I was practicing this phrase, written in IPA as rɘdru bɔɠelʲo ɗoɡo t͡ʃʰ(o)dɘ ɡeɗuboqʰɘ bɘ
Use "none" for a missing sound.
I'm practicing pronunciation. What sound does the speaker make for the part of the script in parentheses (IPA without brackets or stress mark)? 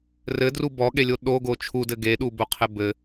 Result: u